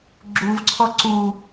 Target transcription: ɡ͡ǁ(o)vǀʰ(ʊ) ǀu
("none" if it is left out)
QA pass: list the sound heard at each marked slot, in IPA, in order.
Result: u, ɔ

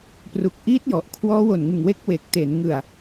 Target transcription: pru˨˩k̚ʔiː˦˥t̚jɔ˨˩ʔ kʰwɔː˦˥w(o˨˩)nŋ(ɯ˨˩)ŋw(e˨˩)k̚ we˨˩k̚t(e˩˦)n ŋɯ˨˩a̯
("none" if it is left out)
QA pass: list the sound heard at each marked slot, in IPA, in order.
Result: o˨˩, ɯ˨˩, e˦˥, e˩˦

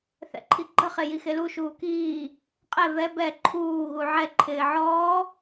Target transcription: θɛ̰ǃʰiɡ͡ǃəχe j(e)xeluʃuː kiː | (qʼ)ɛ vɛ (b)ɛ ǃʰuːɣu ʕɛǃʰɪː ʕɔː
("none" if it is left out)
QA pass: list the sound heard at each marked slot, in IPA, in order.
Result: i, qʼ, b

